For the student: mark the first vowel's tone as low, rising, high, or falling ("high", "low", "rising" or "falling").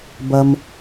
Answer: low